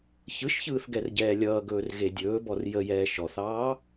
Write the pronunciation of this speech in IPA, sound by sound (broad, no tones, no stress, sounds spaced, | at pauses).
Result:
ç ɯ ʃ ç ɯː θ ɡ ɛ r ɟ ɛː lʲ ʌː ɡ ɵː r ɣ e dʲ ɵː b ɔ r j ə j ɛː ʃ ɔ θ ɑː